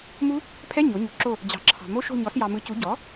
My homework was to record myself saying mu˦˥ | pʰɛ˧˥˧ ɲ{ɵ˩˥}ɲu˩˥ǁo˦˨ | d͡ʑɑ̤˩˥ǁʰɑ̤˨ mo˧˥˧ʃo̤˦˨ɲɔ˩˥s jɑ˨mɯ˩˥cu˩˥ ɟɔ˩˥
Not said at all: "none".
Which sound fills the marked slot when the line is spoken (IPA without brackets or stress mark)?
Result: o˩˥